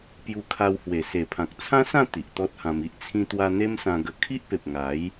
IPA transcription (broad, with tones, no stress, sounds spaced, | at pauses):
p j u˧ kʰ a˧ w h w e˨˩ s e˨˩ pʰ ã˨ k̚ t͡sʰ ã˦ s ã˥˧ t̪ i˨ ʔ t̪ ɔ˦ t̚ h ã˧ m i˦ ʔ t͡sʰ ĩ˧ t̪ w a˧ n̪ e˦ m s ã˧ ɡ ə˧ kʰ i˦ ʔ p e˨ p̚ ŋ a˨˦ j